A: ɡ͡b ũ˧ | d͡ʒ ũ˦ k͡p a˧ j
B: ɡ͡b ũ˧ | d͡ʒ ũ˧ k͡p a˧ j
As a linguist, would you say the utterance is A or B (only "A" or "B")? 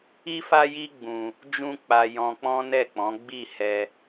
A